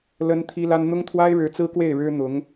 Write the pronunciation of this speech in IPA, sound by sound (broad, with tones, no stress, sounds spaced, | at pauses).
l ə˥ n t̪ʰ i˥ l a˥ n n̪ ʊ˥ ŋ t̪ʰ w a˥ ɪ̯ ɻ ɻ̩˧˥ t͡s ɹ̩˥ k w e˥˩ ɪ̯ ɻ ɻ̩˥ n̪ ʊ˧˥ ŋ